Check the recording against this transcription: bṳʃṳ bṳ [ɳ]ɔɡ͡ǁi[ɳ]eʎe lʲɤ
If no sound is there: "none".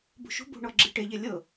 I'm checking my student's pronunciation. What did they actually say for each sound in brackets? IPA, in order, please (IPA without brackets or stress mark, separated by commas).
ɳ, ʈ